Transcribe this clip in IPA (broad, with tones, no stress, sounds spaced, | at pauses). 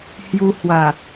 h j u˧ h w a˨˩